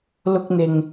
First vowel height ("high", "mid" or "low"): high